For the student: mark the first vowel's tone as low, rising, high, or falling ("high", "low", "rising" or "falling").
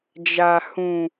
low